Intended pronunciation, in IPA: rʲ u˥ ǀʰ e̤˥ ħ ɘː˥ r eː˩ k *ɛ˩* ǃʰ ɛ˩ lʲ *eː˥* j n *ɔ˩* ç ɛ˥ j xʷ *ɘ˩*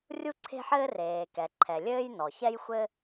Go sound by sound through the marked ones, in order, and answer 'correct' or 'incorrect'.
correct, incorrect, correct, incorrect

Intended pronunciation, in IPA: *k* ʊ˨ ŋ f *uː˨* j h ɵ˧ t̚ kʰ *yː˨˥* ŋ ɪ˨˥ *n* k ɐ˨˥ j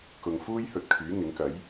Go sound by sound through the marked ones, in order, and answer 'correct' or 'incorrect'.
correct, incorrect, correct, incorrect

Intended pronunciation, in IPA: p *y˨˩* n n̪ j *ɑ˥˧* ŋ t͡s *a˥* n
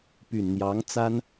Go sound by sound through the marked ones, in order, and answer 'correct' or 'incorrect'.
correct, incorrect, correct

